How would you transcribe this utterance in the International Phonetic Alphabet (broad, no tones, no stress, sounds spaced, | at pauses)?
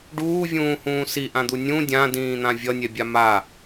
ɖ uː vʲ ũː h ũː s i ʔ ã d̪ u nʲ ũ dʲ ã d ĩː n̪ ã vʲ ʌ nʲ ɛ bʲ a m a